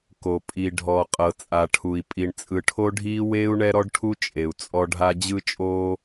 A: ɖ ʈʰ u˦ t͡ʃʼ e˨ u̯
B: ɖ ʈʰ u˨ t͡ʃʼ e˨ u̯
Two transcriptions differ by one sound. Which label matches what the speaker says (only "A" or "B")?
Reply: A